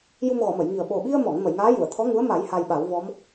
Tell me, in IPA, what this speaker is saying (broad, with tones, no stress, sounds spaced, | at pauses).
j u˧ m ɣ ɔ˨˩˨ m ə˨˩˨ j ŋ i˨˩ ə̯ ɓ o˨˩ ɓ i˧ ə̯ m ɔ˨˩˨ ŋ m ə˨˩˨ j ŋ aː˧˥ j u˨˩˨ ə̯ t̪ʰ ɔ˧˥ ŋ u˧˥ ə̯ m a˨˩˦ j h a˧ j ɓ a˨˩˦ w v ɔ˧˥ m